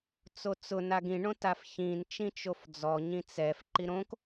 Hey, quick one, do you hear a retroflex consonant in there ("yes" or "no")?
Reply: yes